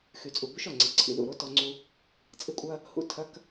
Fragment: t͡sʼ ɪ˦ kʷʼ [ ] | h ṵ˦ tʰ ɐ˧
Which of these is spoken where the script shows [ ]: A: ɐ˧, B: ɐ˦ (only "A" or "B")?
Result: B